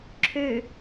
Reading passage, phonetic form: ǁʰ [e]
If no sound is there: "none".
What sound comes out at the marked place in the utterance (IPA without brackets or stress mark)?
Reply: ø